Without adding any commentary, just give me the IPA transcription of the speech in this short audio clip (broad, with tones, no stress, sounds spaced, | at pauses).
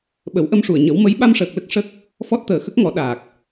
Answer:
ɓ ə˨˩˦ w ʔ ə˧ m ʂ u˨˩ ə̯ ɲ ə˨˩˦ w m ə˧˥ j ɓ a˧ m ʂ əː˨˩ k̚ l ə˦˥ k̚ ʂ ə˦˥ k̚ | f ɔ˦˥ t̚ t̪ əː˨˩ x ə˦˥ k̚ ŋ ɔ˨˩˦ ɗ aː˨˩ k̚